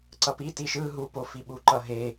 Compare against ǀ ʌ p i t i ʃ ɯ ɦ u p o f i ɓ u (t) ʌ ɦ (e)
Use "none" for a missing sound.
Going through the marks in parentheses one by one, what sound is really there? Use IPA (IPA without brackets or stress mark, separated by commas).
ǃ, e